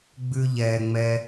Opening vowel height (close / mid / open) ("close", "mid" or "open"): close